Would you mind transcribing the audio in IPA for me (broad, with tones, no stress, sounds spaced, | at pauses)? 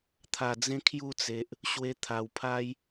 t̪ʰ a˨˩ d͡z ẽ˧ kʰ j u˥˧ t͡s e˨ ʔ | ɕ w e˧ t̪ʰ a˨˩ w pʰ a˦ j